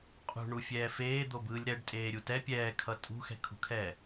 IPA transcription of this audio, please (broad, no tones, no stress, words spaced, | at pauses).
qʼṳɳufʲɛː feːd̪obɯːlʲ ɾɛɖtʼeːɾʲu tɛ pʲɛːkʰʌ tʼṳxɛ̤kʰṳkʰɛː